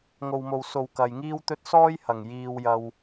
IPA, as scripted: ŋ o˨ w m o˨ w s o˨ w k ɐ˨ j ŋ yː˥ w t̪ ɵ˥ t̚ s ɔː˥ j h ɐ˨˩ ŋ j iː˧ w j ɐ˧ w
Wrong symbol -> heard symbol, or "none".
yː˥ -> iː˥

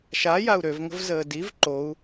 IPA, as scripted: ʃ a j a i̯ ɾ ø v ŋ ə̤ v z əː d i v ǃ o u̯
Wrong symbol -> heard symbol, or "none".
i̯ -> u̯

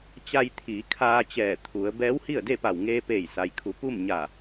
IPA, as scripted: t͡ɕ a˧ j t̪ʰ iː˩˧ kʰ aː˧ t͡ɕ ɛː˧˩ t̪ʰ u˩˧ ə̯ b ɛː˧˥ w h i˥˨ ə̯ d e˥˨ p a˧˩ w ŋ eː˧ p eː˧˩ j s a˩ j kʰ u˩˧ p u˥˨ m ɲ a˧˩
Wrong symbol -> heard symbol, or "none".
none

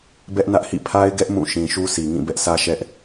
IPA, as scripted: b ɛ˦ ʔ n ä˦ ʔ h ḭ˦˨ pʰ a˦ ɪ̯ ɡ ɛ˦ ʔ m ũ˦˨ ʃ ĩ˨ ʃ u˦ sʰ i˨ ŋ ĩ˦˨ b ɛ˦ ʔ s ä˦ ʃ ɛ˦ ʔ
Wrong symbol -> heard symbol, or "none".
none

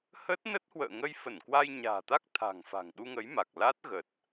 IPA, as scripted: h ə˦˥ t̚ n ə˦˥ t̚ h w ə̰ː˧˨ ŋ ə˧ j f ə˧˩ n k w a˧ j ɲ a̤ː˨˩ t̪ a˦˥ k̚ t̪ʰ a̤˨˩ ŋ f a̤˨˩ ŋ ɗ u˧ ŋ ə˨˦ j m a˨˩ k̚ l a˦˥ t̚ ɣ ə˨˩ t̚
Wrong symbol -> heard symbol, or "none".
none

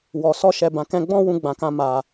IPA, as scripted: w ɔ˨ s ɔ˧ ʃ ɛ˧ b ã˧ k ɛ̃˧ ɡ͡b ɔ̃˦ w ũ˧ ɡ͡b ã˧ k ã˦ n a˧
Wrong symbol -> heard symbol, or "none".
n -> m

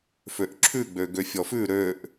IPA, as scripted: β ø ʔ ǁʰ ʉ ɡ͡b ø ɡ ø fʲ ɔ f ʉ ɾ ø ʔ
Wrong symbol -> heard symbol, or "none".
β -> f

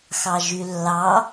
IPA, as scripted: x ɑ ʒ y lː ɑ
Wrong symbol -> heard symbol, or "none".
none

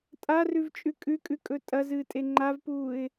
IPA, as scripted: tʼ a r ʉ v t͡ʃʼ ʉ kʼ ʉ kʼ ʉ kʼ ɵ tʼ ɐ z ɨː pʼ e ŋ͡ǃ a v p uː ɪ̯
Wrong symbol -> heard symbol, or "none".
pʼ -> tʼ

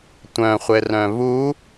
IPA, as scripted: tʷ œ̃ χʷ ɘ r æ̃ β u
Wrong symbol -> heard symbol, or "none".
æ̃ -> œ̃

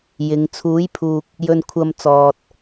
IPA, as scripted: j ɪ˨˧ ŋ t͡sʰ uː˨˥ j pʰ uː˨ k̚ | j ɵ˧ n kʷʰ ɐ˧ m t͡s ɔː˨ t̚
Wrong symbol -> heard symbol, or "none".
none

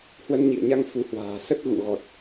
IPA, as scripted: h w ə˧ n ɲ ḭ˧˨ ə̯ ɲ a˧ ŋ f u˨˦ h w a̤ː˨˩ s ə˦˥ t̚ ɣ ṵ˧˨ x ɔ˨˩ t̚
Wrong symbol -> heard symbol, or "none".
x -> ɣ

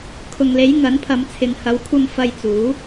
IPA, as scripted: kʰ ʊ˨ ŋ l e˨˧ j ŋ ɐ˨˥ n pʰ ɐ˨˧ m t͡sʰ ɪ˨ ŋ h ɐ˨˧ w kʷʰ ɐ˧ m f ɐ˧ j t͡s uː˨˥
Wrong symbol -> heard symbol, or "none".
none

